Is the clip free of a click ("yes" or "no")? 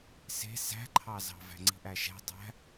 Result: no